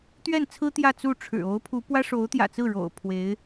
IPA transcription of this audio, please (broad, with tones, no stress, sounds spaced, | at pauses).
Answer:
t̪ ɥ ɛ˥˩ n t͡sʰ ɹ̩˥ t̪ j ä˥˧ t͡s u˥˩ ʈ͡ʂʰ ɻ̩˨˩ o˧˥ ʊ̯ pʰ u˧˥ p w ä˥ ʂ o˧˥ ʊ̯ t̪ j ä̰˨˩ t͡s ɹ̩˥˩ ɻ o̰˨˩ ʊ̯ pʰ w e˧˥ ɪ̯